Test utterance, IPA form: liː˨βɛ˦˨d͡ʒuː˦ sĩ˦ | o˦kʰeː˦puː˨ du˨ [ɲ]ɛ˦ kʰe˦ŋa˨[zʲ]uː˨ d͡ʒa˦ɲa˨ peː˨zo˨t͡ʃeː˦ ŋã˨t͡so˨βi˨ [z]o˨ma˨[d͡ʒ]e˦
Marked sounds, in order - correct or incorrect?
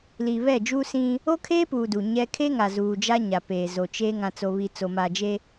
correct, incorrect: z, incorrect: t͡s, correct

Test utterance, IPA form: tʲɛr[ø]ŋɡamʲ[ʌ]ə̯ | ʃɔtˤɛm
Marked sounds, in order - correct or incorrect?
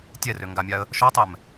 correct, incorrect: a

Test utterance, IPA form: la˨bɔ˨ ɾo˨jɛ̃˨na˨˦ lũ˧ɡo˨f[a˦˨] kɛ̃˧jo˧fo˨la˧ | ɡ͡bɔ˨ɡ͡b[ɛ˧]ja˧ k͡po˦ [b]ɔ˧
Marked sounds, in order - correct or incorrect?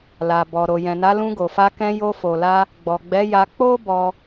incorrect: a˧, incorrect: ɛ˨˦, correct

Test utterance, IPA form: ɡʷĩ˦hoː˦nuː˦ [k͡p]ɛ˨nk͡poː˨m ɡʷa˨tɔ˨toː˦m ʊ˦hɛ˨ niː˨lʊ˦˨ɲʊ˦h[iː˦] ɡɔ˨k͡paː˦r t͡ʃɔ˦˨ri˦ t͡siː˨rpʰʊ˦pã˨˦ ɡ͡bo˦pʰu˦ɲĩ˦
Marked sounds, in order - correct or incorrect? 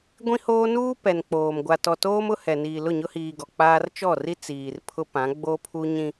incorrect: p, incorrect: iː˨

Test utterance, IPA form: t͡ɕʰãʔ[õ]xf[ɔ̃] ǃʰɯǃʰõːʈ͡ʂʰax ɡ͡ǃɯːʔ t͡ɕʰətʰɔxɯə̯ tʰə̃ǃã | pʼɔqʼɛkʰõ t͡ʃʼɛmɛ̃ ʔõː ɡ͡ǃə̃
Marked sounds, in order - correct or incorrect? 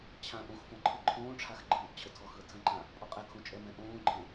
correct, correct

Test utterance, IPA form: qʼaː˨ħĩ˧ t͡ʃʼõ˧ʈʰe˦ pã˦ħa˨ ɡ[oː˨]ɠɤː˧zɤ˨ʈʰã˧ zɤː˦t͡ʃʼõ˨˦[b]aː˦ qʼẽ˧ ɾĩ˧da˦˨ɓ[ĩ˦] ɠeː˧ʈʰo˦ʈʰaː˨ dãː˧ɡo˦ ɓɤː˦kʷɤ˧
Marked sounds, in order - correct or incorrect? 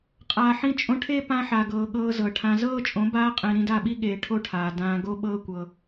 incorrect: ɤː˨, correct, incorrect: i˦

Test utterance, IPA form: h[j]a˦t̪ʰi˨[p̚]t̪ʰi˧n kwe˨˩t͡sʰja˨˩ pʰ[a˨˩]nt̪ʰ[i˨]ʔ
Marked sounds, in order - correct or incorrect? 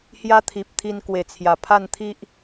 correct, correct, incorrect: a˥˧, incorrect: i˦

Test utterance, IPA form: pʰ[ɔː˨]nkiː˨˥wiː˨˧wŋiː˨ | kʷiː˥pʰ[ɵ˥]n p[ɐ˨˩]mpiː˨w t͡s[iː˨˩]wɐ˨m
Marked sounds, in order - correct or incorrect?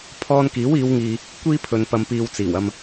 incorrect: ɔː˧, incorrect: ɵ˨, incorrect: ɐ˨, correct

